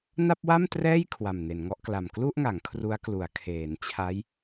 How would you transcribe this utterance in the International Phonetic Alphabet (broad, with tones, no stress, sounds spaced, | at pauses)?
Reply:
n a˥˩ p̚ w a˥˩ m t r ɛː˥˩ j kʰ w a˨˩ m n e˩˦ n ŋ ɔ˦˥ ʔ k l a˨˩ m k l u˥˩ ʔ ŋ a˩˦ ŋ kʰ r u˦˥ a̯ k l u˩˦ a̯ kʰ eː˩˦ n t͡ɕʰ a˦˥ j